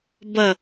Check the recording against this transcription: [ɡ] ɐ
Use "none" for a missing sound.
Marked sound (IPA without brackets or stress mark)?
b